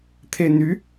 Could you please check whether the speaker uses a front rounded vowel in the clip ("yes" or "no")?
yes